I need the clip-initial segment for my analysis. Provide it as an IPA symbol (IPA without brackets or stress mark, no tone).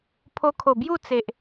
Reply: pʰ